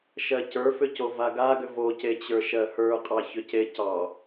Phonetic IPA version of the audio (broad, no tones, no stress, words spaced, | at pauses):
ʃɜcə˞fʏ covaɡaɡʏ vocet͡ɕə˞ ʃɜhə˞qʼɑ çʏcecɑ